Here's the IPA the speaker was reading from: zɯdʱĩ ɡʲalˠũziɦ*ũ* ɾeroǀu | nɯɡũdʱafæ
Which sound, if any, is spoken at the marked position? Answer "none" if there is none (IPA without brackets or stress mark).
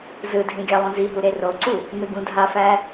u